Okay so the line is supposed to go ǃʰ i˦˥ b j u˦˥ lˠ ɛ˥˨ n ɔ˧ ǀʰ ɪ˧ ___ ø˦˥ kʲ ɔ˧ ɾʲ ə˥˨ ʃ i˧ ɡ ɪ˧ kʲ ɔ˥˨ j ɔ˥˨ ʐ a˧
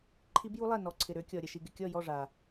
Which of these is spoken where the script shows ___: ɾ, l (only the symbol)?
ɾ